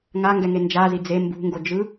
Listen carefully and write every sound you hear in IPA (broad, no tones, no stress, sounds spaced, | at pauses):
ŋ a ŋ ɡ ɛ ŋ e n d͡ʒ a z i d͡z e m b ṳ ŋ ɡ o d͡ʒ ɯ